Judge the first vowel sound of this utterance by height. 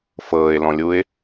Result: mid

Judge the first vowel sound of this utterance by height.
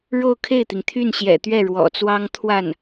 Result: mid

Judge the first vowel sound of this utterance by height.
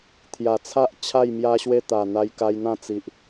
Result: low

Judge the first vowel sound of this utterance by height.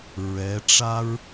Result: mid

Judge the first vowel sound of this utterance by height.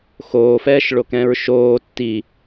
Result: mid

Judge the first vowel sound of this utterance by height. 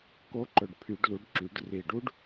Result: mid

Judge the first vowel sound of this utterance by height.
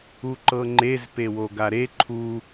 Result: high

